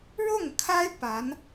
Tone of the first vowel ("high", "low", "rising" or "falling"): falling